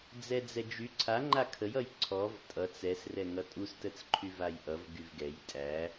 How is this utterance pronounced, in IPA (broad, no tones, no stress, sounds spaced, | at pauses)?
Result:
d͡z ɛ d͡z ɛ d͡ʒ y ǀʰ a ŋ͡ǃ a kʰ ə j ʌ j ǀʰ ɔ v tʼ ʌ t͡s ɛ s r ɛ ŋ ʌ tʼ u s t ə t͡s ǃʰ y v a j ʔ ʌ v ɡ y v ɡ ɛ j tʼ æ